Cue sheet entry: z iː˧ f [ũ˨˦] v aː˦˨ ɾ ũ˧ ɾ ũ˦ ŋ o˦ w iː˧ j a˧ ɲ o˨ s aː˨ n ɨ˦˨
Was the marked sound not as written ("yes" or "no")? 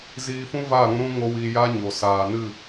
yes